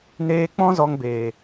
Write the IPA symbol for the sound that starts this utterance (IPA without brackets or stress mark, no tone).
n